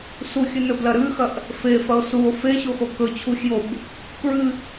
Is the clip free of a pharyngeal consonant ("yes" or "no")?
yes